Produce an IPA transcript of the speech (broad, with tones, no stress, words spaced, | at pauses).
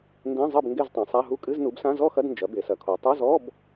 ndẽ˧˥˧zˤɘ˥˨b ŋɡe˥˨ztˤẽ˩˧sˤa˧˥˧ɦu˥˨ kʼɨ˧˥˧znu˩˥bsã˧˥˧ zɔ˥˨xɐ˧˥˧d nd͡ʒɐ˩˥ be˩˧sɐ˩˧kʰo˩˧ tˤo˧˥˧zɔ˧˥˧b